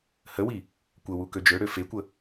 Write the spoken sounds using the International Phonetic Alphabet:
həwi | kʷəwu kød͡ʒøɽø fekʷə

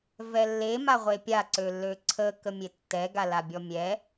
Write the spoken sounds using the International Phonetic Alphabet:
vɛlːe maʁʷepʲa ǀølːøǀʰə kəmʲetːɛ ɡalabʲɔmʲɛ

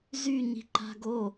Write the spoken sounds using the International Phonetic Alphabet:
zy ɲi̤ǃa̤ɡo

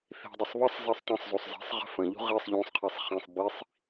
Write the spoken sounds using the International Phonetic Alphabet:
θi̤dˤɪsˤ βəsˤ zesˤtˤɛ̃sˤzusˤ zi̤sˤʁə̤ fə̃ʎṳ ʁisˤ ʎũsˤqʰɛsˤ χĩsˤ bisˤ

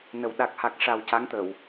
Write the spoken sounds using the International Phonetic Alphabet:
nə˨˩w ɗa˨˩k̚ha˨˩k̚ ʂa˨˩w ca˧˥ŋt̪ə˨˩˨w

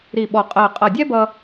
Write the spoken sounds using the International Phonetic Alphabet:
ɾi˧˩ɓɔ˧˩qʼɜ˧˩ qʼʌ˧˩dʲɛ˥bʌ˧

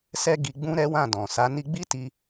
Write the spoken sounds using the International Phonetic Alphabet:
sɛ˧ ɡi˧ ɡ͡bũ˦ ɾɛ˦wã˦˨dɔ̃˨ sa˨˦ni˦ ɡ͡bi˦ti˧

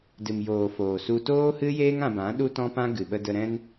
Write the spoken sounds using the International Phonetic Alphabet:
dɨ˨mjoː˨foː˨su˧ toː˦hɨ˦jeː˦ŋ ã˧bã˨˦ɗu˦ tɔ̃˦pã˦ ɡɨ˨ɓə˧də˧ ɾɛ̃˦n

